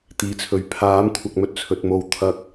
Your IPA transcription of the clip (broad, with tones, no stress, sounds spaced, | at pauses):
t̪ iː˨˧ t͡sʰ ɵ˨˥ ɥ pʰ aː˨˥ m kʷʰ ɐ˨ k̚ m ɵ˧ t̚ t͡sʰ ɵ˧ t̚ m o˧ w t̪ʰ ɐ˧ k̚